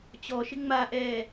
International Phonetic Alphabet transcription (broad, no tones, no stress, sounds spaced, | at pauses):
t͡ɕ ɔ ʃ ɪ ŋ͡m a ʔ ɛː